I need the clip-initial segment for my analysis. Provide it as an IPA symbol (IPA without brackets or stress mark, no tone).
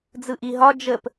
d͡z